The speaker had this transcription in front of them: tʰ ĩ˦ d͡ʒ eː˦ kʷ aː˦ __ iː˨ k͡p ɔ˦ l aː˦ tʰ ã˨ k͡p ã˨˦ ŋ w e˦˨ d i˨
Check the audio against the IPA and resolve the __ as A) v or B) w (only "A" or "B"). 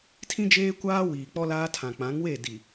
B